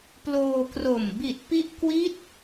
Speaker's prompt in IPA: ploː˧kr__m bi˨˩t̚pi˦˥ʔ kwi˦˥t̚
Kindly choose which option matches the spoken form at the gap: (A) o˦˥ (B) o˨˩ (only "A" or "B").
B